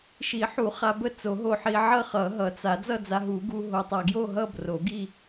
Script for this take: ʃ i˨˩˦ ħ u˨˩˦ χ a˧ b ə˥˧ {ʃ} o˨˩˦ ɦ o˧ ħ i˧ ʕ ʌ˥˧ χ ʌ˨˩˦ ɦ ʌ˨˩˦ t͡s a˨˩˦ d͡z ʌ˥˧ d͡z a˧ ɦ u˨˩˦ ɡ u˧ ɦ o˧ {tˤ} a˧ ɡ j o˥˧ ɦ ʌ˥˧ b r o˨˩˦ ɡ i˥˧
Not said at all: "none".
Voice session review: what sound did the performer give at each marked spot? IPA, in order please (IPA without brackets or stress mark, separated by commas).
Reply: t͡s, tˤ